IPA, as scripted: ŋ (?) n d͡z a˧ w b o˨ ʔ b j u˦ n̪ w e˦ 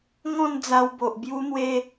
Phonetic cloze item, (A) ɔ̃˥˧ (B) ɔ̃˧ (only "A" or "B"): A